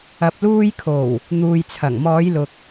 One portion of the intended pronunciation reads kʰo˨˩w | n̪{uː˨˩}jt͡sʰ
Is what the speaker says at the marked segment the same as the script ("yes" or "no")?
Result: no